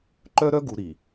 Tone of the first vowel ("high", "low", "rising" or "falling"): high